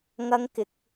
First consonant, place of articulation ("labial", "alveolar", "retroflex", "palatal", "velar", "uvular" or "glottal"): velar